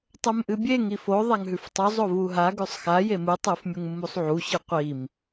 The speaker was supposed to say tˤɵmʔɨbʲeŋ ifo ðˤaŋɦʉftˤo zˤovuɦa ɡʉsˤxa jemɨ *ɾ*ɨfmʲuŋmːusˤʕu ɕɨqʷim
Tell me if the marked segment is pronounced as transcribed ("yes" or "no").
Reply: no